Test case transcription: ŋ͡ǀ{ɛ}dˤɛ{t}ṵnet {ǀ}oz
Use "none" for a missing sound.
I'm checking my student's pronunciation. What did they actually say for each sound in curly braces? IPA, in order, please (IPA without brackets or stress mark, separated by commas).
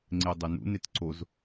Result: e, n, ǀ